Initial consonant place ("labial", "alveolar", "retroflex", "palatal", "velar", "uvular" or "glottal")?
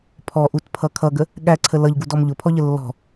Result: labial